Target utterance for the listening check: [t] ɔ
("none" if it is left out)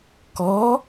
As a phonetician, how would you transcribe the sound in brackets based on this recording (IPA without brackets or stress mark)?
k